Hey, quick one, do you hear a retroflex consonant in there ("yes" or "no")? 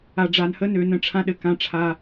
yes